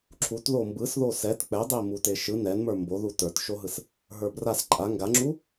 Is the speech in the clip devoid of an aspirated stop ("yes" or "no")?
no